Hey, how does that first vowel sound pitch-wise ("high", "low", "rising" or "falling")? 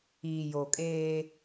low